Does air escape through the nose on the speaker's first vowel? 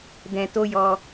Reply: yes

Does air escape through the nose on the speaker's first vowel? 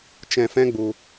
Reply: yes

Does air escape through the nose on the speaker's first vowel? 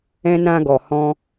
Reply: yes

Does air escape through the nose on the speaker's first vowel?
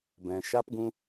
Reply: yes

